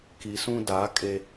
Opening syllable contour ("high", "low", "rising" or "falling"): low